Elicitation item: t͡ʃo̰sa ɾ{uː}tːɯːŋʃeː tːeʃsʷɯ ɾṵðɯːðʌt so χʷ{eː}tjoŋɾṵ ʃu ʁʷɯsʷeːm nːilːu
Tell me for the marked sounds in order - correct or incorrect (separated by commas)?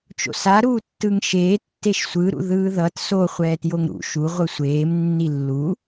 correct, incorrect